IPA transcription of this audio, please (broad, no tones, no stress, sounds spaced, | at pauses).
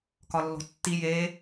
k ɒ lː o̤ tː i j e